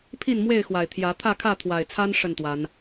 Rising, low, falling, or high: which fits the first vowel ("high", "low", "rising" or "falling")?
falling